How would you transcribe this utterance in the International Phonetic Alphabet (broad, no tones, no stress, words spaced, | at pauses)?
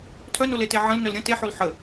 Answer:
tʰœnolete ʕə̃lnœl ɾʲə̃ teħol ħə